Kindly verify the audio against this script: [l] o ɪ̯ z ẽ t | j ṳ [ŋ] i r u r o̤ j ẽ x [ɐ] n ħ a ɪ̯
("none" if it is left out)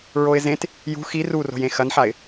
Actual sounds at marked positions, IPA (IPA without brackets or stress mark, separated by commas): ɹ, x, ɐ